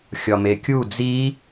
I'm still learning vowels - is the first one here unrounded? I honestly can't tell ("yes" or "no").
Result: no